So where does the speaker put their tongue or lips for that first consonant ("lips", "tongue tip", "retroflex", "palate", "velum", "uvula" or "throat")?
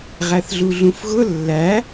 uvula